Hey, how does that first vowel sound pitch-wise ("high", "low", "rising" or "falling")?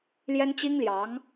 high